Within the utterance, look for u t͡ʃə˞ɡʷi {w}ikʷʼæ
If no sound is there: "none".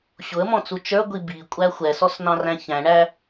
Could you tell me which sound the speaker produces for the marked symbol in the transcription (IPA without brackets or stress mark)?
b